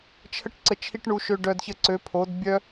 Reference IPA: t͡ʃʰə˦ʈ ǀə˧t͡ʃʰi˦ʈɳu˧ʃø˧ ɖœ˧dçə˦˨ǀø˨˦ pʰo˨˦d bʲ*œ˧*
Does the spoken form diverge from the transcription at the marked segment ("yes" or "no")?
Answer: yes